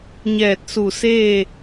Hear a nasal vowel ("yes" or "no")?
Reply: no